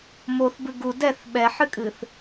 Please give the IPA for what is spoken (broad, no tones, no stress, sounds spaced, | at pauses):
m o θ b ɨ ɡ u d ɛ θ ɓ ɛ ħ ɨ kʼ ɨ θ